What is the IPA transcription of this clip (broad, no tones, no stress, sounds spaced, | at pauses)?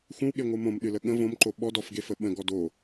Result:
xʷ ə̃ w ɠ e ŋʷ ɨ m õ m ɗ ɨ l ə ɠ ə̃ v õ m ǃ o ɓ ɔ d ɔ f ɡ e f ə ɓ ə̃ ɡ ɔ d o